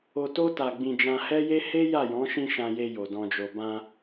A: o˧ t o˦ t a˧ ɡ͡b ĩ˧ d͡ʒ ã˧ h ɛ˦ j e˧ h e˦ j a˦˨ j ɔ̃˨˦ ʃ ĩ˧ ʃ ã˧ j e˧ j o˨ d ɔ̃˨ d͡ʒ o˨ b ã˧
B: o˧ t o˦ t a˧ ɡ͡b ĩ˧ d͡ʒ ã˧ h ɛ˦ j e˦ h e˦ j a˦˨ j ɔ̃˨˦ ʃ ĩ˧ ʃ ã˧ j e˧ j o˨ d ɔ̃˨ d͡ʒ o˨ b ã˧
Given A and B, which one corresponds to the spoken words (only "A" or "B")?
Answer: B